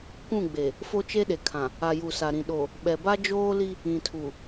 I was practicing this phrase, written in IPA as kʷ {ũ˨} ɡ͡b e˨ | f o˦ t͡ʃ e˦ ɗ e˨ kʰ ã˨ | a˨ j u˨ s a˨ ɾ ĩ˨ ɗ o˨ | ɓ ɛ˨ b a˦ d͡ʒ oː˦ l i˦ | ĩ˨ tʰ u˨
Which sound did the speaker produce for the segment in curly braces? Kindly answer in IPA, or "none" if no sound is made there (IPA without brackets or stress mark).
ũ˦˨